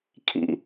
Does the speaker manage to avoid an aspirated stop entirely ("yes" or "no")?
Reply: no